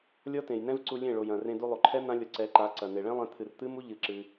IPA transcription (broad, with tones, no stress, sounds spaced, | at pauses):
lʲ ɔ˦ t ẽ˨ j n ɛ̃˦ v ǀ u˧ lʲ ẽ˦˨ ɭ o˨ j ɐ̃˨ r ẽ˧ d u˧ lˠ o˨ ǃʰ ɛ˦ n̪ ã˦ lʲ ɔ˧ ǀ ɛ˨˦ ǃ a˨˦ ǀ ɐ˨ n e˨ ɭ ẽ˦ lˠ ẽ˧ t̪ʰ ɨ˨ r t̪ ɨ˦ m u˦ ʎ ɨ˧ ǁ ɨ˧